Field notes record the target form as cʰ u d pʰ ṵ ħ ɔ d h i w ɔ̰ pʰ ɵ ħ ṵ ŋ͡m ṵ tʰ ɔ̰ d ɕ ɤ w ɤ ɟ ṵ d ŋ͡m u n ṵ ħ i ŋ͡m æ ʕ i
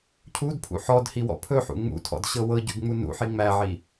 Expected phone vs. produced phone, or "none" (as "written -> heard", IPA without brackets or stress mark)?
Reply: none